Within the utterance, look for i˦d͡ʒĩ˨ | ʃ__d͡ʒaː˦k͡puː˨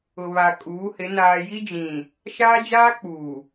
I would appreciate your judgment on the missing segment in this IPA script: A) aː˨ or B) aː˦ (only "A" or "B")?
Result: B